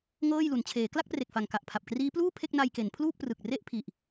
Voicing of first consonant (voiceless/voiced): voiced